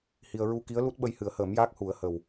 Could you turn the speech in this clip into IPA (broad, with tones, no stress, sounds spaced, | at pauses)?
h i˧ ə̯ ɹ u˧ k i˧˥ ə̯ l u˦˥ t̚ ɓ ə˧ j h ɨ˨˩˦ ə̯ h əː˨˩˦ m j aː˦˥ k̚ h u˨˩˦ ə̯ h ə˨˩ w